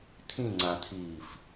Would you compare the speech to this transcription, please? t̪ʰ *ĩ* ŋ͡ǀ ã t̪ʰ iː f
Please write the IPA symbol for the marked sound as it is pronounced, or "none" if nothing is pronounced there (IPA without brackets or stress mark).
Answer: ĩ